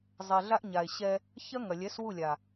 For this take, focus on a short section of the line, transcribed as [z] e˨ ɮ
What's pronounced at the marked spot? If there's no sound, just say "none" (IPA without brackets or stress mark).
zˤ